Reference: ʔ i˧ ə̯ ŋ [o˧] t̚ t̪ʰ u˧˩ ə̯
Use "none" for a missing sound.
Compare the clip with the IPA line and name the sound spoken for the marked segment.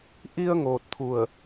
oː˧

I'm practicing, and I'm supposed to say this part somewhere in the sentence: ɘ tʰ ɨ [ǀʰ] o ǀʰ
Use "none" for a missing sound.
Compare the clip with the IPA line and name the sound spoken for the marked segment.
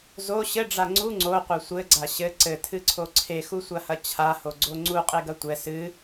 ǀʰ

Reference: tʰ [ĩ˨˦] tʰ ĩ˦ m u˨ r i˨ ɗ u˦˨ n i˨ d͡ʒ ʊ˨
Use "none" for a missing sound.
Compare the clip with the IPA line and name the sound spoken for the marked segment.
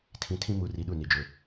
ĩ˨˦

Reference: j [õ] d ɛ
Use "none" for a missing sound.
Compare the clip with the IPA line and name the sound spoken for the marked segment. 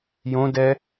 õ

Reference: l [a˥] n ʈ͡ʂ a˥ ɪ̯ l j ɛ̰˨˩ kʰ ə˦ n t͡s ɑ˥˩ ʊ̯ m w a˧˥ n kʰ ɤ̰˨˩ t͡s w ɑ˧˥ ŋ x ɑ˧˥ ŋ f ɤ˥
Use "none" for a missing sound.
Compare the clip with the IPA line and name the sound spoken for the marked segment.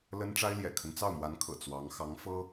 ə˥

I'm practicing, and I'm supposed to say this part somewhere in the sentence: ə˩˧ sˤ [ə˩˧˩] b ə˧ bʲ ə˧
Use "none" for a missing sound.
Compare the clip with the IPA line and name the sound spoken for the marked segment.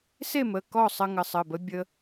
ə˩˧˩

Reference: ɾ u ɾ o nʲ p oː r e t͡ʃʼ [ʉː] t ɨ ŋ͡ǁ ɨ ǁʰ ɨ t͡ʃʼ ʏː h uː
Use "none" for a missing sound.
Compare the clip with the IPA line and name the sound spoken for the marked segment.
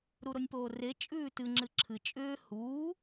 ʉː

